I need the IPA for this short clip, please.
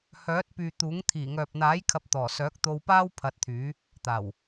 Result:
h œː˨˥ t̚ p yː˨ t̪ uː˨˥ ŋ t̪ʰ iː˨˩ ŋ œː˨ p̚ n̪ aː˨˥ j kʰ ɐ˧ p̚ t̪ ɔː˨˩ s œː˨˥ k̚ t̪ o˧ w p aː˥ w pʰ ɐ˧ t̚ t̪ʰ yː˨˥ | t̪ aː˨˩ w

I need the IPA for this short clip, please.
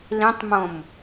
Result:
l ĩ tˤ m õ m

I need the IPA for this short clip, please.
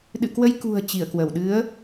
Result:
ɗ ɨ̰˧˨ k w ə˧ j k ṳ˨˩ ə̯ t͡ɕ i˧˩ ə̯ k w ə˧˩ w ɗ ɨ˨˦ ə̯

